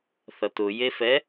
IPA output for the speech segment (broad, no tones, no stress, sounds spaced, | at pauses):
θ ʌ t ʊ j e f ɛ